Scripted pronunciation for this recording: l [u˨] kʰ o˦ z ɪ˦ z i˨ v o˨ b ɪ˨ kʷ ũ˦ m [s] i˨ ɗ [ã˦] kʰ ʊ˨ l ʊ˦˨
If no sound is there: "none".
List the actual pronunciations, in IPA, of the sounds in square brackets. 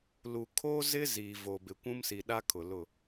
u˨, s, a˦

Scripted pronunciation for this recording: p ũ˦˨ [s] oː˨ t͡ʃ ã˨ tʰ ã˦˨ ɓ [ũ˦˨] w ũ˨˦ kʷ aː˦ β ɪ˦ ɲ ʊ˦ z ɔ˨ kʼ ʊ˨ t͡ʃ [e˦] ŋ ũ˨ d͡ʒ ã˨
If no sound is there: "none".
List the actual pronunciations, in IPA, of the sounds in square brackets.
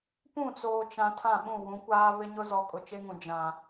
t͡s, ũ˦˨, e˦

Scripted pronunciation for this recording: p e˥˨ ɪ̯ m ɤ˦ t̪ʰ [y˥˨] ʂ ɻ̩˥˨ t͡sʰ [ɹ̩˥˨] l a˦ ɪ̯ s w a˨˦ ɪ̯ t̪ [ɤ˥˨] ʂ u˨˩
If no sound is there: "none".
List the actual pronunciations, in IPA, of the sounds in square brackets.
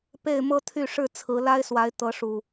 y˥˨, ɹ̩˨˦, ɤ˨˦

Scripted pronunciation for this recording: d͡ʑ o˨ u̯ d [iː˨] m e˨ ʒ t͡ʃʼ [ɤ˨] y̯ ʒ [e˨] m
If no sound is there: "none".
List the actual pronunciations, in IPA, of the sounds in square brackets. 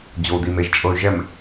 i˨, ɤ˨, ɛ˨

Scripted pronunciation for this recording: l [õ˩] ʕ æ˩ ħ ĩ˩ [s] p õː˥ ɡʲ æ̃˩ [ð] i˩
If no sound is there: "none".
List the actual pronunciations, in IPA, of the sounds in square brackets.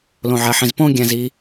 õ˩, z, z

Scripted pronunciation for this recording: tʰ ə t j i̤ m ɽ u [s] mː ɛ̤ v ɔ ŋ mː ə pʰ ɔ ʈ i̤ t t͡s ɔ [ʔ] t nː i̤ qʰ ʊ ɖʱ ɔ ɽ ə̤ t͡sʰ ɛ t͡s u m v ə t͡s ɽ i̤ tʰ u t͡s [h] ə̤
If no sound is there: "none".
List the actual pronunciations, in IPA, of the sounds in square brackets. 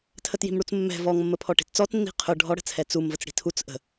t͡s, none, ʔ

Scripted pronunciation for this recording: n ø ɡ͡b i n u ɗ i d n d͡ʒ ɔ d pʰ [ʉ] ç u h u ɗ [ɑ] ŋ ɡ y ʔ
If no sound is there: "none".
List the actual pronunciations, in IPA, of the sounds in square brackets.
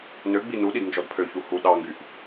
ø, ɑ

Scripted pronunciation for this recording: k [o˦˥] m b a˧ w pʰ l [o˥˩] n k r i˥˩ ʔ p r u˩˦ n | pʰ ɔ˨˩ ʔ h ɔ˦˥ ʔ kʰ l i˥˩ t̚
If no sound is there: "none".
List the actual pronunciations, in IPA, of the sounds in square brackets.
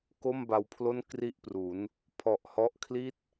o˥˩, o˥˩

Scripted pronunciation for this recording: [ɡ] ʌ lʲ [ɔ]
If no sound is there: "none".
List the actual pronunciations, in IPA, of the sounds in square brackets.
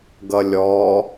ɡ, ɔ

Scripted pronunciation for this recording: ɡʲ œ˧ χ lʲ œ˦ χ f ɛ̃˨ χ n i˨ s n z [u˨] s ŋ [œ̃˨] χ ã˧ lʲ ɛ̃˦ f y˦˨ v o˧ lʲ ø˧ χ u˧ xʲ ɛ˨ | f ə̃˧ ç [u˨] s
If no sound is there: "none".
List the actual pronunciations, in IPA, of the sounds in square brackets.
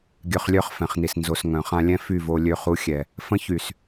o˨, œ̃˨, y˨

